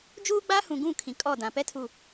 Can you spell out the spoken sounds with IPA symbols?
d͡ʒ uː˦ ɡ͡b a˦ h ũ˨ ɡ ũ˦˨ kʰ ĩ˨ kʼ ɔ˦˨ d ã˨ p ɛ˦ tʰ u˨

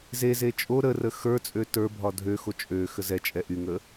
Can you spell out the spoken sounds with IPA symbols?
z e z e t͡ʃʼ o ɾ ə r ə x ə˞ t͡sʼ ø t ə˞ bʱ ɒ dʱ ø x o t͡ʃʼ ø x ə z ɛ t͡ʃʼ ɛ ʔ y ŋ ə

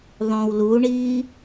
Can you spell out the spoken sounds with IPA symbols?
ðˤ õ w l u ɳ iː

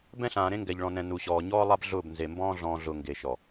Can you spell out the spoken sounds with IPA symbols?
b ɛ̃˦ ɬ ãː˨ ɾ ẽ˦ ŋ ɡ ɛ˨ ʎ ɭ ɔ̃˨ n ɛ̃˨ n u˨ ɕ ɔː˨ ɲ ɔː˦ lˠ a˦ b ɮ ʊː˦˨ b n z e˨ m b ɔ̃ː˦ ɮ ɔ̃ː˨ ɮ ʊː˨ ŋ ɡ e˨ ʃ ɔ˨

